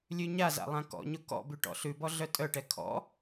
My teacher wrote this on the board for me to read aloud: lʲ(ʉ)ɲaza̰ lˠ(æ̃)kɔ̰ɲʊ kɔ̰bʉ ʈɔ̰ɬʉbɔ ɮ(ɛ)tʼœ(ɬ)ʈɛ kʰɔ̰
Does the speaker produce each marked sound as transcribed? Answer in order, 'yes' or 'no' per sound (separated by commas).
yes, no, no, no